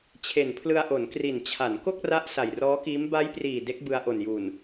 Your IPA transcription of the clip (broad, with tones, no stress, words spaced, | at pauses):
t͡ɕʰe˨˩npʰlɯ˧a̯ʔo˩˦n kri˨˩nt͡ɕʰa˩˦n ko˥˩k̚ra˦˥ʔ sa˨˩jrɔː˦˥kiː˦˥m ba˦˥jpriː˨˩ de˦˥k̚bɯ˧a̯ʔo˨˩njuː˨˩n